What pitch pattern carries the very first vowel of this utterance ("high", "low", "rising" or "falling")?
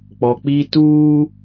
low